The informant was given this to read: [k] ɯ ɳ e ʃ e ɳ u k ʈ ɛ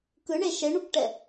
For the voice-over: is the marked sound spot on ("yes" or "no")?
yes